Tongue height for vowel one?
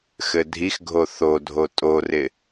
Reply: mid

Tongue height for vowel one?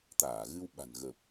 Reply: low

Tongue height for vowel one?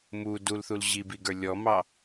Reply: high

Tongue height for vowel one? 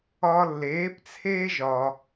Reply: low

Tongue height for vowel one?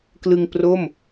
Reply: high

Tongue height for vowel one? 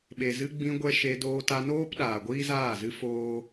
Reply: mid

